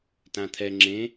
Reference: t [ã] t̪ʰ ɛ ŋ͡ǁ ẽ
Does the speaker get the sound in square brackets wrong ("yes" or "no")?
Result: no